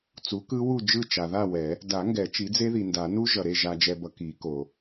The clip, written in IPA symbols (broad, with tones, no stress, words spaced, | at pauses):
t͡su˩˥kɯ˦˥ wu˥˨ d͡ʒɯ˥˨t͡ʃa˨ ða˥˨wɛ˨˩˦ | da˨˩˦ŋɡɛ˨˩˦ t͡ʃi˩˥d͡ze˦˥ði˨nda˨˩˦ nu˦˥ʒʌ˨ɾe˥˨ ʒa˨d͡ʒɛ˨bʌ˨ ki˨˩˦ko˨